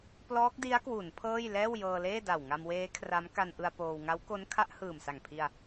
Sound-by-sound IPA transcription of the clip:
p l ɔː˦˥ k̚ d i˦˥ a̯ k w u˩˦ n pʰ ɤː˥˩ j l ɛː˥˩ w j ɤː˧ l eː˥˩ d a˨˩ w ŋ a˧ m w eː˦˥ kʰ r a˦˥ m k a˧ n ʔ ɯ˧ a̯ p oː˧ w ŋ a˦˥ w k o˦˥ n kʰ a˦˥ ʔ h ɯː˨˩ m s a˨˩ ŋ pʰ i˧ a̯

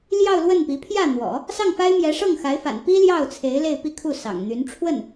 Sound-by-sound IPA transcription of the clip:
l j ɑ˥˧ ʊ̯ l w ə˥˩ n p i˧˥ pʰ j ä˥˩ n̪ w ɔ̰˨˩˦ | s ɑ˥˩ ŋ f a˥ ɪ̯ m j ɛ˧˥ ʂ ɤ˥˩ ŋ x a˧˥ ɪ̯ f a̰˨˩ n p i˥ l j ɑ˥˩ ʊ̯ t͡sʰ e˧˥ ɪ̯ l e˥˧ ɪ̯ p i˥˧ kʰ u˥˩ s ɑ̰˨˩ ŋ n̪ y˧˥ n ʈ͡ʂʰ w ə˥˩ n

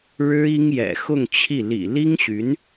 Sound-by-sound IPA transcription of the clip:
ɻ ɻ̩˥ i˥ ŋ j ɛ̰˨˩ x ʊ˥˧ ŋ t͡ɕʰ i˥˩ l ḭ˨˩ l i˥ ŋ ɕ y˧˥ n

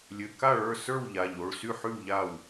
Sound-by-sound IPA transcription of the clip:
lʲ ɘ˩˧˩ k a˥˩ ɭ ə˞˥˩ s ə˞˥˩ w ʎ a˩˧˩ ʎ o˩˧˩ ɭ s y˥˩ ħ y˥˩ w ʎ a˥˩ w

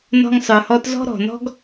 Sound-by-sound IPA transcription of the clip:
n ɔ̤˧ ŋ sˤ ə˞˩ h ɔ˧ t z ɔ̤˥ ɾ ɔ̤˩ n ɔ̤˥ ɡ

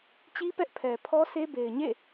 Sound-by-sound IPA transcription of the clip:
t͡ɕ i˦ p ɛ˦ ʔ pʰ ɛ˨ pʰ ɔ˦ s e˦ b e˨ ɪ̯ ɲ ḛ˦˨

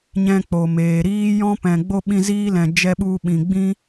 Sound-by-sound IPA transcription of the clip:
ɲ ɛ̃˧ k͡p o˨ m eː˨ ɾ iː˦ j ɔ̃˦ p ɛ̃˨ ɡ͡b o˦ ɓ ĩ˧ z iː˦ l ɛ̃˨ d͡ʒ ɛ˧ ɓ u˧ ɓ ĩ˨ ɡ͡b ĩ˦

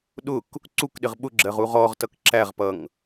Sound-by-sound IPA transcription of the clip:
ɗ ʊ k | ǀ u k ɗ ɪ ʁ ɓ ʊ ɡ͡ǁ ɜ ʁ u ʁ ɔ ʁ t ʌ k ǁ æ ʁ p ʌ ŋ

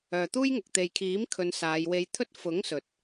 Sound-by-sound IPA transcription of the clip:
œː˨ t̪ uː˥ j ŋ ʊ˨ k̚ t̪ e˨ j kʰ iː˨˥ m kʰ ɵ˨˧ n s aː˨˧ j w e˧ j t̪ʰ ɵ˥ t̚ f ʊ˨˥ ŋ s ɵ˨ t̚

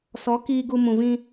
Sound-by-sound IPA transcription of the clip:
s ɔ˨˦ k iː˧ ɡ u˧ m ũ˨ v ĩ˧

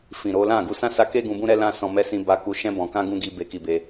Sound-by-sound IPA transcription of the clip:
f ĩ˨ ɾ o˨˦ l ã˦˨ ɡ u˧ s ã˦ s a˧ k e˦ ɡ ũ˧ b ũ˦ ɾ ɛ˦ l ã˦ s ɔ̃˧ m ɛ˧ s ĩ˧ b a˧ k u˧ ʃ ɛ̃˧ b ɔ̃˨ k ã˧ ɡ ũ˦ ɡ i˧ b e˨ k i˨ b e˧

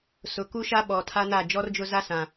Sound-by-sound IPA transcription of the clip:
s ʊ˨ k u˦ ʃ a˦ ɓ ɔ˨ tʰ a˦ n a˦˨ d͡ʒ ɔ˦ r d͡ʒ ʊ˦ z a˦ s ã˨

